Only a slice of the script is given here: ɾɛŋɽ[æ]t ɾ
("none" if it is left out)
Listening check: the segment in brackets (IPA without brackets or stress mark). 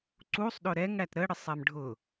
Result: æ